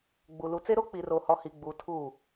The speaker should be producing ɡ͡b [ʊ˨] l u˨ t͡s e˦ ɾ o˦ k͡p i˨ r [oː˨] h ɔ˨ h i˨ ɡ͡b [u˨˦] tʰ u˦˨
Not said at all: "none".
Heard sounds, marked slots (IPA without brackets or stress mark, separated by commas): u˨, o˨, u˨˦